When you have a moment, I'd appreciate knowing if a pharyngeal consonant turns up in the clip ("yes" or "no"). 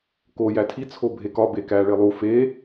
no